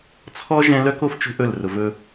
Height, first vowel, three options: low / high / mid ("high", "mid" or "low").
mid